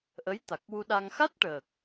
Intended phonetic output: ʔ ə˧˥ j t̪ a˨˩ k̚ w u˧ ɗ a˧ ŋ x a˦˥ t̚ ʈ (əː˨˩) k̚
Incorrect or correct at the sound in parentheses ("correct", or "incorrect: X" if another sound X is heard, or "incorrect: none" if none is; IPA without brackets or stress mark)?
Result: correct